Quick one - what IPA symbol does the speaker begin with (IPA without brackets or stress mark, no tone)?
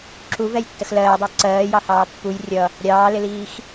ǁ